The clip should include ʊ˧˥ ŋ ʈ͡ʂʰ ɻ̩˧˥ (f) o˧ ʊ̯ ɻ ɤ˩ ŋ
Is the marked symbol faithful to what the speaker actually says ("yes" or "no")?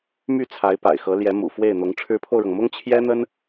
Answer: no